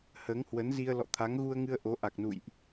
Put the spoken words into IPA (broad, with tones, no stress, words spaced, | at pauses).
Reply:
həː˨˦ŋhwə˨˦nzi˧ə̯ lɔ̰˧˨t̪ʰa˨˦ŋɣu˧ə̯ŋɨ˧ə̯ ʔo˨˦ ʔa˨˩k̚nṵ˧˨jʔ